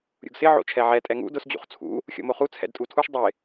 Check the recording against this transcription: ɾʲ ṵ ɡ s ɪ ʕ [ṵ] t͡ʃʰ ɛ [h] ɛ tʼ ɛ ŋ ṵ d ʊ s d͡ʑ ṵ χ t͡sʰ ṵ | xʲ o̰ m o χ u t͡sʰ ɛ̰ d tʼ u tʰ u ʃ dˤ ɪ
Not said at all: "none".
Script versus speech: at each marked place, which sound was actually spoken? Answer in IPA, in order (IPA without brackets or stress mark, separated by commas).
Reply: o̰, ʕ